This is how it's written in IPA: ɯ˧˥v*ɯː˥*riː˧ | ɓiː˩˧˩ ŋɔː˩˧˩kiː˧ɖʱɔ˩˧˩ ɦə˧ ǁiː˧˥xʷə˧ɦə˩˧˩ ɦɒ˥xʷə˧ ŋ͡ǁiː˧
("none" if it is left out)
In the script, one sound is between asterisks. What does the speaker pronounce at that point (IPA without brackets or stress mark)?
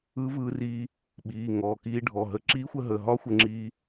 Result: ɯː˧